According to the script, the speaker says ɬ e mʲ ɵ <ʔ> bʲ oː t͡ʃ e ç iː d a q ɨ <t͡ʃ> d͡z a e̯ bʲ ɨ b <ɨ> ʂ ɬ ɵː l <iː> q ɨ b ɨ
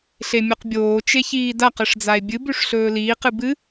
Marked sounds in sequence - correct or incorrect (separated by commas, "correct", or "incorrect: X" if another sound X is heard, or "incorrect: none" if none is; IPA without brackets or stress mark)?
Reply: incorrect: q, incorrect: ʂ, incorrect: ʉ, correct